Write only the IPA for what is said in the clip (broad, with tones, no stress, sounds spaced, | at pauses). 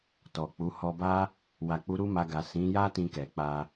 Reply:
t ɔ˨ k͡p u˨˦ h ɔ˧ b a˦ | w a˨ k͡p u˨˦ ɾ u˦ m a˧ ɡ a˨ s ĩ˨˦ j a˦ t ĩ˧ k ɛ˨ k͡p a˧